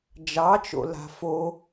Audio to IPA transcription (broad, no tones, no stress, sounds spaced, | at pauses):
d͡ʒ ɑ t͡ʃ o̰ l a̤ f o